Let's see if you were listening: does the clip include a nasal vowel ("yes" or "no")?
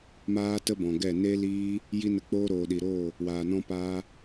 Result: yes